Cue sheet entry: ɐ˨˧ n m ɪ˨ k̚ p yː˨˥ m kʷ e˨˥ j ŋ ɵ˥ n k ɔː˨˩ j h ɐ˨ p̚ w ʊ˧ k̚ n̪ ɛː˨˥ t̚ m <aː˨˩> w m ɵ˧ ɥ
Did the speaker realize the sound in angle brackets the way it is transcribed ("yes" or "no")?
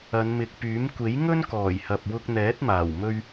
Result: yes